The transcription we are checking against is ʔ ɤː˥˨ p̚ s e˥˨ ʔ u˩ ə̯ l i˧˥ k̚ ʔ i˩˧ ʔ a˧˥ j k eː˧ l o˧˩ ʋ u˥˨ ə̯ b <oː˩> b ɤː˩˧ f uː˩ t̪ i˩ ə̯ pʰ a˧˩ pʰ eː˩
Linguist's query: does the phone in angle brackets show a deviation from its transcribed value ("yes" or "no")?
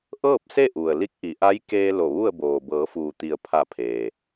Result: no